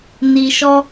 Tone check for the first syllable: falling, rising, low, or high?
low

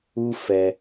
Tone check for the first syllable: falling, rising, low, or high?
low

